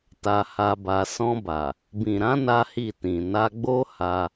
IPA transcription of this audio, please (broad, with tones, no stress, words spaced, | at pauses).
ta˧ha˧ba˧ sɔ̃˧ba˨ | bĩ˨ɾã˨˦ na˦hi˦˨ tĩ˨na˧ ɡ͡bo˦ha˧